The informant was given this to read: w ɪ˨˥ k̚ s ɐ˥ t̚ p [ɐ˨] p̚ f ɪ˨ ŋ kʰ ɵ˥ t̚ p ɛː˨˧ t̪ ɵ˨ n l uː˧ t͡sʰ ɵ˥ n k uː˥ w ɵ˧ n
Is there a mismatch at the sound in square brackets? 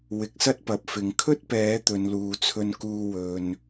no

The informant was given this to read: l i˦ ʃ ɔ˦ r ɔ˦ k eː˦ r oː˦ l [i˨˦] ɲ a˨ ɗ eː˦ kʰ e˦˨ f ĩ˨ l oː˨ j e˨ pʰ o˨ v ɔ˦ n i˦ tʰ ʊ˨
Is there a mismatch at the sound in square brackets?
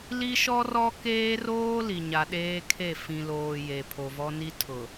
yes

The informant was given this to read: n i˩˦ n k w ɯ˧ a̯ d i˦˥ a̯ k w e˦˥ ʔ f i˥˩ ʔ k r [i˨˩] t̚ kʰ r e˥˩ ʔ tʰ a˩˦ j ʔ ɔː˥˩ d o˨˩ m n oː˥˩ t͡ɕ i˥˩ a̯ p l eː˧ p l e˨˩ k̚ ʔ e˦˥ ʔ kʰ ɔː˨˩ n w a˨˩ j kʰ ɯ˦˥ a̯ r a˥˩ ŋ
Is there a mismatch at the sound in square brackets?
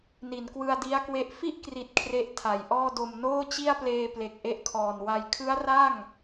no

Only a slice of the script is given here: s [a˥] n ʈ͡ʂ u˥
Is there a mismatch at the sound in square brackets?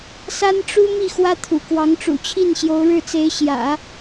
no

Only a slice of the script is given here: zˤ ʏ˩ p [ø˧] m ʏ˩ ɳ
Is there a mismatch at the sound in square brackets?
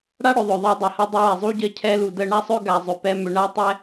yes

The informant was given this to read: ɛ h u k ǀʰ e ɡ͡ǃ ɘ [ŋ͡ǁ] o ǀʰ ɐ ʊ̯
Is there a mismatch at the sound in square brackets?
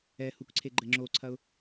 no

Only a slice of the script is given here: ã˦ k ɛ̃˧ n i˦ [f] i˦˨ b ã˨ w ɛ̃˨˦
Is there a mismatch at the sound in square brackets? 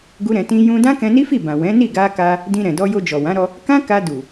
no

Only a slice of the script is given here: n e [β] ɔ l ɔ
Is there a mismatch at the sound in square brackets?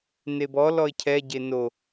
yes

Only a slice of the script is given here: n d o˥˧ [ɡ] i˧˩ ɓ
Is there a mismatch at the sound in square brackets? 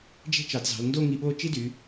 yes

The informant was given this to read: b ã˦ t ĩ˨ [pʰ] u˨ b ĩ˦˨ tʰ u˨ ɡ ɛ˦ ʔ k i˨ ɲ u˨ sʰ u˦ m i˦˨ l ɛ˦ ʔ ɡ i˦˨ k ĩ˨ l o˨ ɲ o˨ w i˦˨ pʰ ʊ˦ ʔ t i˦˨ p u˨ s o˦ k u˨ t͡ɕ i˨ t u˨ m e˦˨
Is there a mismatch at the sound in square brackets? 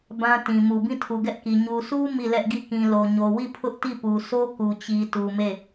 yes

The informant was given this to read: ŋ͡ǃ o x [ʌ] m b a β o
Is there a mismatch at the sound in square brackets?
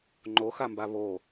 yes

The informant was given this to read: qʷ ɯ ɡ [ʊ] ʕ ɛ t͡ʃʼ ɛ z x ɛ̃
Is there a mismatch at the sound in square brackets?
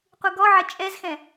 yes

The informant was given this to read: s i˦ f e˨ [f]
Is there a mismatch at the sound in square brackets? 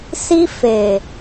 yes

